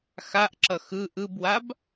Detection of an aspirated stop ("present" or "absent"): absent